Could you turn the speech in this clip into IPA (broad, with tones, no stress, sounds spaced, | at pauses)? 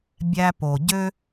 bʲ æ˧ p o˨ ɟ ø˦